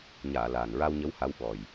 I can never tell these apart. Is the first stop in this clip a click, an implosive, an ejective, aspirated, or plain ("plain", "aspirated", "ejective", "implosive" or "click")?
implosive